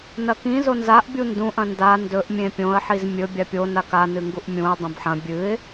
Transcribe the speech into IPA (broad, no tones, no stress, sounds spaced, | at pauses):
n ɐ k ĩ z o n z a ʔ bʲ u n d ũ ʔ ɐ̃ n d a n d ɵ ʔ mʲ ẽ pʲ õ ə̯ ħ i z mʲ ɵ bʲ a pʲ o n a k a n ɨ ŋ ɡ u ʔ mʲ ũ ə̯ dˤ õ b ħ ɐ̃ bʲ ɨ ɪ̯